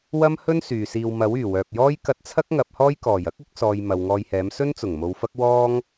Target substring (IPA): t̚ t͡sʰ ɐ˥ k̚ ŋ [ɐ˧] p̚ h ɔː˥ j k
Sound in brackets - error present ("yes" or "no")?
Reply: yes